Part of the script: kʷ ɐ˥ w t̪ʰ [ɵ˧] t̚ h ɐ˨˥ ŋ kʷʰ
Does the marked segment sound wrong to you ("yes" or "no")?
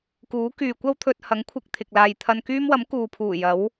no